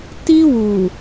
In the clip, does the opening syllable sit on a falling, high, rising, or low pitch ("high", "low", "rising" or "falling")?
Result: high